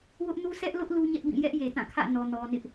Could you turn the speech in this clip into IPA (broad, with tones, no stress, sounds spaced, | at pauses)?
w ʊ˦ ʔ n u˦ s ɛ˦ ʔ l ʊ˦ ʔ l u˦ ɲ ɛ˦ ʔ b ĩ˦˨ j ɛ˦ ʔ j e˨ t ã˦˨ kʰ ä̰˦˨ n ɔ˨ n ɔ˨ n ɪ˦ ʔ